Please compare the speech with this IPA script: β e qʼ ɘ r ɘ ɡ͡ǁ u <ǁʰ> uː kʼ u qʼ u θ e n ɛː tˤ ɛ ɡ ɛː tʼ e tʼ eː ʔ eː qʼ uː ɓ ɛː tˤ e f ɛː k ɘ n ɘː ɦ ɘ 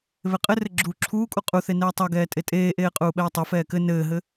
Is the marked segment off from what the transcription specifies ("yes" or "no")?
no